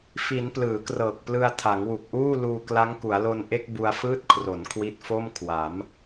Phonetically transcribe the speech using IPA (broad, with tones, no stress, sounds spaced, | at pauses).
f i˩˦ n p l ɯː˩˦ k r ɤː˨˩ k̚ p l ɯ˧ a̯ tʰ a˩˦ ŋ w u˨˩ k̚ ʔ uː˥˩ l uː˧ k l a˦˥ ŋ k u˩˦ a̯ l o˧ n ʔ e˥˩ k̚ b u˧ a̯ f ɯː˥˩ t̚ kʰ r o˩˦ n kʰ w i˦˥ t̚ f o˥˩ m kʰ w a˩˦ m